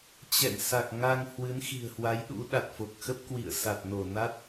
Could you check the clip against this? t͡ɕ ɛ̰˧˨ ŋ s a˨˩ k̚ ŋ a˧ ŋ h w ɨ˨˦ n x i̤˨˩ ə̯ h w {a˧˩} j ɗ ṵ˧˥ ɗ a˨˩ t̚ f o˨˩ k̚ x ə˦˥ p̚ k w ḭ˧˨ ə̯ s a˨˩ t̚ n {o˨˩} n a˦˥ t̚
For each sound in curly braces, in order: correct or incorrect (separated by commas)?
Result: incorrect, incorrect